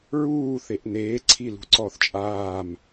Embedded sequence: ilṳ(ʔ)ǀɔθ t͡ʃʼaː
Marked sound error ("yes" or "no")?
yes